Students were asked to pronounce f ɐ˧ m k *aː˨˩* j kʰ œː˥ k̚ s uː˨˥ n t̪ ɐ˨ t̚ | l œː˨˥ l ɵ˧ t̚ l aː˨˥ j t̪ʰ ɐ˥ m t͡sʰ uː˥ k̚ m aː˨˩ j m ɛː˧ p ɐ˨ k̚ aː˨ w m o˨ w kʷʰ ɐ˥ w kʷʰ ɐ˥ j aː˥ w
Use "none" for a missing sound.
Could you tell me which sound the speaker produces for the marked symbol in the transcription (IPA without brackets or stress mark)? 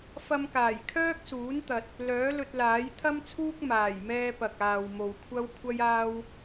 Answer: aː˨˩